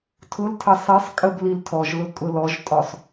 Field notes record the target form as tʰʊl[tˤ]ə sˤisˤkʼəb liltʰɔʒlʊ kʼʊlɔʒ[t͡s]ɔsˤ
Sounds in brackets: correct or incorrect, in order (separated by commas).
incorrect, incorrect